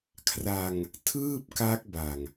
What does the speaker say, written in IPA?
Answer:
kʰ r a˧ ŋ | tʰ ɯː˥˩ p̚ k a˦˥ k̚ b a˨˩ ŋ

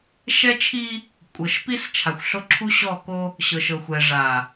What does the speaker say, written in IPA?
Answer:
ʃ ɛ˦ t͡ʃʰ i˦ | kʷʼ ɤ˨ ʃ p i˦ s t͡ʃʰ a˨ xʷ ɬ o˦ ǁʰ u˦ ɕ ɔ˦˨ k o˦ | ɕ ɤ˨ ʃ ɤ˨ xʷ ɛ˨ ʐ a˨

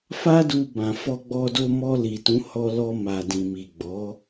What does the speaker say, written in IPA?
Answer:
f a˦ d u˧ b ã˨ f ɔ˧ ɡ͡b ɔ˧ d o˧ m ɔ˧ l i˨ t ũ˨˦ h ɔ˧ l ɔ˧ m a˨ d ĩ˨ m i˨ ɡ͡b ɔ˨˦

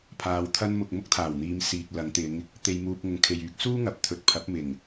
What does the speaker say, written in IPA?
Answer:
pʰ aː˨ w t̪ʰ ɐ˧ n m ʊ˨ k̚ m ʊ˥ k̚ t̪ʰ aː˨˩ w n̪ iː˨˧ m s iː˨ k̚ l ɐ˨˧ ŋ t̪ ɪ˨˧ ŋ | t̪ e˨ j m uː˨ p̚ ŋ ʊ˨ ŋ kʰ e˨ j yː˨˥ k̚ s uː˥ ŋ ɐ˨˥ p̚ t̪ʰ ɵ˨˥ t̚ pʰ ɐ˨˥ p̚ m ɪ˨˩ ŋ

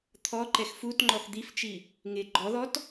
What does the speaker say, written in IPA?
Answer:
t̪ʰ ɔ ǃ ɛ x f u t ŋ͡ǃ ɔ x d̪ i f t͡ʃ i | ŋ ɪ ɡ͡ǃ ɔ ð ɔ t

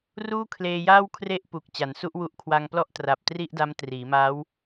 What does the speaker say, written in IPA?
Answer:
r uː˥˩ kʰ l eː˧ j aː˥˩ w kʰ r e˥˩ ʔ p u˨˩ k̚ t͡ɕ a˩˦ n s u˦˥ ʔ w u˦˥ ʔ kʰ w a˧ ŋ p l ɔ˥˩ ʔ t r a˨˩ p̚ t r i˥˩ ʔ d a˦˥ m t r iː˩˦ m aː˦˥ w

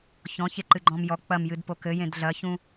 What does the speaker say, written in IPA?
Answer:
ç ɔ̃ ç e ǃ ɨ ɡ͡ǃ ɔ̃ m j ɔ k͡p ɐ m j ɨ d p o k ɘ j ẽ d ɮ ɐ ç ũ

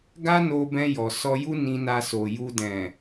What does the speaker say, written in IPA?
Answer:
ɡ a˦ n o˧ b ɛ̃˧ j ɔ˨ s ɔ˧ j u˦ n ĩ˧ n a˧ s o˨ j u˨ d ɛ̃˨

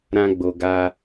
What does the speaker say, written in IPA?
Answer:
ɾ ã˧ ɡ͡b o˨ ɡ a˧

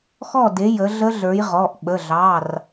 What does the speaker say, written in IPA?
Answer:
x ɔ˥˨ d e˨˦ j ə˨˦ ɮ ə˦˥ ɮ ə˞˨˦ j ʁ ɔ˩˧˩ ʔ ɓ ə˩˧˩ ɮ ɑ˩˧˩ r

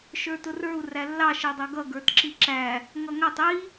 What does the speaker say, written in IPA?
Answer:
ʃ ə˞ t ʊ r ə˞ u̯ r æ lː ɑ ʃ ɛ dˤ ʌ ɡ ʌ ɡ ə˞ t ǁ i ǁ æ | ŋ ʌ ŋ æ tˤ i

